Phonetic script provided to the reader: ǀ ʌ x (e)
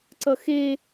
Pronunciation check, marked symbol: correct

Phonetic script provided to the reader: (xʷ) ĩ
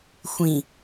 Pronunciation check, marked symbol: correct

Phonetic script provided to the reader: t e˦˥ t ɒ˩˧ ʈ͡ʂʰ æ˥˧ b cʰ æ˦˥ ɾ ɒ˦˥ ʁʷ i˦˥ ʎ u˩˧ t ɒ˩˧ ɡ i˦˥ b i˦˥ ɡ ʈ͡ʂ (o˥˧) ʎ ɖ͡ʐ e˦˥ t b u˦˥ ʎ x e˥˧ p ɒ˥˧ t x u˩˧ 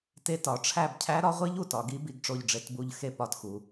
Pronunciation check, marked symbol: correct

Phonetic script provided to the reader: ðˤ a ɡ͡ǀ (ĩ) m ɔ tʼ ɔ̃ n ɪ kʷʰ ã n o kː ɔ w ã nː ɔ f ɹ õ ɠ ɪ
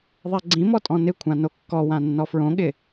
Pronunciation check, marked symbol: correct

